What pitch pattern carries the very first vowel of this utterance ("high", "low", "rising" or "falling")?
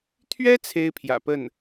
high